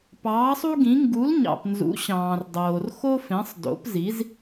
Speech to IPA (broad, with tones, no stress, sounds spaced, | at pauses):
p ɑː˨˥ sˤ u˥ ɡ ĩ˨˥ ŋ ɡ u˨˥ l ɲ ɑ̰˨ p n z ṵ˨˥ ɕ ɑ̃ː˨ r dˤ oː˨ r x o˥ f ẽ˨˥ sˤ d o̰˨˥ p z i˨˥ z